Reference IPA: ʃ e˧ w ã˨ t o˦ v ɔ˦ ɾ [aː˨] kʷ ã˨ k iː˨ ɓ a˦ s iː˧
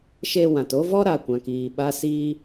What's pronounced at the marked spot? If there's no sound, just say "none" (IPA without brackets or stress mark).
a˨